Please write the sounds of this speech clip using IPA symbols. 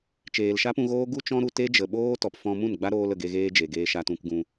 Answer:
t͡ʃ eː˨ l ʃ a˦ p ũ˧ ɣ oː˦ ɡ u˦ t͡ʃ ɔ̃˦ ɾ u˧ t e˦ d͡ʒ ə˨ ɓ oː˦ t ɔ˨ p f ɔ̃˧ m ũ˦˨ n ɡ͡b a˦ ɾ oː˦ l ə˨ ɡ e˧ ɣ eː˦ d͡ʒ e˨ ɡ eː˧ ʃ a˧ t ũ˧ k ɡ ũ˧

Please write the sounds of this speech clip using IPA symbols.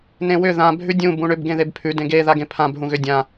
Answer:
n ẽ w ʏ ð ã bʱ ʉ dʲ ũ b ũ ɳ ʏ b ɡ ẽ ð e b pʰ ʉ d ẽ ɡ e ð a ɡ ẽ pʰ ã b ɦ ũ ɣ ʏ dʲ ã

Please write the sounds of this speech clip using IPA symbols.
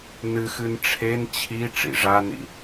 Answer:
n ɨ x ɨ n ʈ͡ʂʰ e n t͡ɕʰ i ʈ͡ʂ ḭ ʐ a n ḭ

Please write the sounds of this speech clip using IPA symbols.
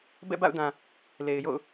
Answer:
b ɛ̰˦˨ b a̰˦˨ ʊ̯ d ã˨ | l e˨ ɪ̯ j o̰˦˨ ʊ̯

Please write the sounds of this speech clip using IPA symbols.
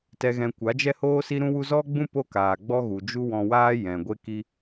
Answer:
t ɛ˨ ɣ ɛ̃˨ kʷ a˨˦ d͡ʒ ɛ˦ h oː˦ s i˦ ɾ ũ˦ w u˦ z ɔ˦ ɡ͡b ũ˦ p o˦ k aː˨ ɡ͡b ɔ˦ ɣ u˨ d͡ʒ u˦ w ɔ̃˧ w aː˦ j ɛ̃˨ ɡʷ e˦ k i˦

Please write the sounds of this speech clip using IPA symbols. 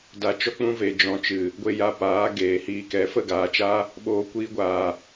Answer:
d a˧ t͡ʃ ɔ˦ k͡p ũ˦ v e˧ d͡ʒ ɔ̃˧ t͡ʃ ɨ˨ | ɡʷ e˧ j a˧ p aː˨˦ ɡ eː˨ h iː˧ k ɛ˨˦ f ə˦˨ ɡ aː˨ t͡ʃ aː˦ | ɓ oː˦ kʷ iː˧ ɡʷ aː˨

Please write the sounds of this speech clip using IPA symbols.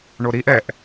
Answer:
ɳ o ɾ i ʔ ɛ ʔ

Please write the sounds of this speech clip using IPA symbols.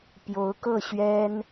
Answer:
p j o˧˥ ʊ̯ k ɤ˥˩ ɕ ɥ ɛ˥ n

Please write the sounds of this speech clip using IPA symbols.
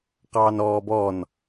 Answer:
q ɑː n ɔː b ɔ n

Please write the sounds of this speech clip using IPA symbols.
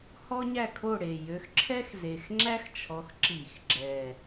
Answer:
h ɔ˥ ɲ æ˥˨ kʰ o˥˨ ɽ e˨˩ j ø˨˦ x ǁʰ ɛ˥ x z e˨˩ x ŋ͡ǁ æ˥ x t͡ʃʰ ɔ˨˦ x ǁ i˧˩˧ x ɡ͡ǁ ɛ˨˩

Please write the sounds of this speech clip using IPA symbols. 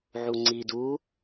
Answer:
ʕ u ŋ͡ǀ i d u

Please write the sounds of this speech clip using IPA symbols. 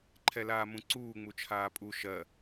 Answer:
ǃʰ ɛ l aː m ũ ǀ uː ŋ͡m u t͡ʃʰ aː pʼ u ʃ ɜ

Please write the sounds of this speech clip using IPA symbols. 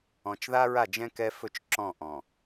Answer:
ɔ̃˨ t͡ʃ ð a˦ ɹ a˦˨ d͡ʒ ɛ̃˦ k ɛ˦ f ɵ˦ t͡ʃ ǁ ɔ̃˦˨ ʔ ɔ̃˨

